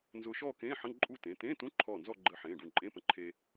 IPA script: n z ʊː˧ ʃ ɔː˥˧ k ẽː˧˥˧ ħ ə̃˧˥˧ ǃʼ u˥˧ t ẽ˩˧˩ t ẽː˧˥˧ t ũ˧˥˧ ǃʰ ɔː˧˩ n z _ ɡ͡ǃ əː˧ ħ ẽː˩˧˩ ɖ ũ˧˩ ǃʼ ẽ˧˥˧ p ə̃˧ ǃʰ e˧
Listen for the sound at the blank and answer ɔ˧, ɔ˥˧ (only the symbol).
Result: ɔ˥˧